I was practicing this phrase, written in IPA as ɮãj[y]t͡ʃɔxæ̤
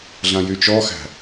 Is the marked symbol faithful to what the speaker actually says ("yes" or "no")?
yes